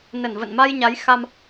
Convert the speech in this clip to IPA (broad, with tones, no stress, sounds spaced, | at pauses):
n ə˧˩ n v ə̰˧˨ n m a˧ j ɲ a˨˦ j x a˧ m